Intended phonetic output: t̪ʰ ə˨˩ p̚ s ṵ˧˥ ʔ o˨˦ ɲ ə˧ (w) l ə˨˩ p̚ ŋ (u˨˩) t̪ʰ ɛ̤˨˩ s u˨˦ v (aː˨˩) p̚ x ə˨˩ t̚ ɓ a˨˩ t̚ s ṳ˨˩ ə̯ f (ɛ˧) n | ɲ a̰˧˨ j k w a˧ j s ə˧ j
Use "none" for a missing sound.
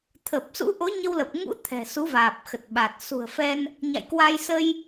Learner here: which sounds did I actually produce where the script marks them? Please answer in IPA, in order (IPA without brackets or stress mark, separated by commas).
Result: w, ṵ˧˥, aː˨˩, ɛ˧